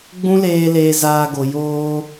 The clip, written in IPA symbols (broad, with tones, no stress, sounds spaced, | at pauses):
ɡ͡b ũ˦ l eː˧ l eː˧ z aː˧ ɡ o˨ j oː˧